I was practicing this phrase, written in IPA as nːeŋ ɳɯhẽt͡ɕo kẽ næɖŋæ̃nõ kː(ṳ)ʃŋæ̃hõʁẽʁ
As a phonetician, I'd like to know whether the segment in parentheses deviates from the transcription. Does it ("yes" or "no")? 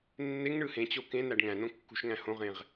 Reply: no